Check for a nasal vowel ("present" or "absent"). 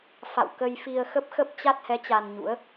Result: absent